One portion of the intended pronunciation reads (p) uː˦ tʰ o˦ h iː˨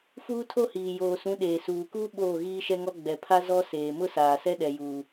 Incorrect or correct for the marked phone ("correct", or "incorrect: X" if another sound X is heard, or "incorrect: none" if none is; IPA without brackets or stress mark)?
incorrect: f